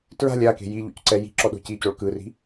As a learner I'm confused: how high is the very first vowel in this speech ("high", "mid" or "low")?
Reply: low